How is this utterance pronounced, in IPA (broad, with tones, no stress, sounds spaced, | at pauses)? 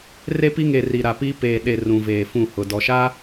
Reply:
r e˦ p i˦ ŋ e˨ r i˨ ɾ a˨ p iː˦ p eː˨ ɗ e˨ r ũ˨ v eː˨ f ũ˦˨ h ʊ˨ d ɔ˨ ʃ a˦